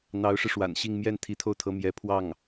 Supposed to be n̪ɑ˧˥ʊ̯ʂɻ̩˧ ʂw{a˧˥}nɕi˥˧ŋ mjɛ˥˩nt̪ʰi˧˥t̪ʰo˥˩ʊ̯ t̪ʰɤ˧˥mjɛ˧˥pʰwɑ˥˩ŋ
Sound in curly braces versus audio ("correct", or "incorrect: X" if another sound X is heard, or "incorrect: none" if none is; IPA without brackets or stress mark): incorrect: a̰˨˩